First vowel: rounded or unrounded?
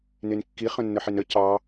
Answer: unrounded